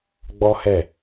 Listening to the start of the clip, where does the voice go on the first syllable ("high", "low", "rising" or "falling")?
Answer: high